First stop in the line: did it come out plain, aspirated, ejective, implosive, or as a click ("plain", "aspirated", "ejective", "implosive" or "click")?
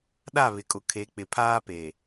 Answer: implosive